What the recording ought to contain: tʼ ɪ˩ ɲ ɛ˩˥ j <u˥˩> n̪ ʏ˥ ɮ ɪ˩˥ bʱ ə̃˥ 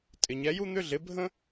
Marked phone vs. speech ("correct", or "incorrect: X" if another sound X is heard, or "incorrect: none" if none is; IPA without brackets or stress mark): incorrect: u˥